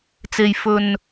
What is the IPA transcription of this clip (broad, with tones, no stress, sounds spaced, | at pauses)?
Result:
t͡s e˧ j f ɵ˧ n